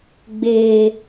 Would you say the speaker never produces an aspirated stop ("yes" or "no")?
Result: yes